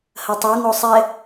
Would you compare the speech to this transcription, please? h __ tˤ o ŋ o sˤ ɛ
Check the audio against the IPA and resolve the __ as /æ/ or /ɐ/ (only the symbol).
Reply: ɐ